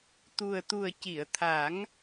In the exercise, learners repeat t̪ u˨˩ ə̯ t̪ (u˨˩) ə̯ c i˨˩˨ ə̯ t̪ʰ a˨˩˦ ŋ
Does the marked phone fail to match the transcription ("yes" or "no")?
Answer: no